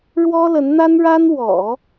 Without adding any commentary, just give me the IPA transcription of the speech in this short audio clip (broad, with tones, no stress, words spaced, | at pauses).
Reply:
ɻwɔ˥lə˧˥nn̪a˥nɻa˥n wɔ̰˨˩˦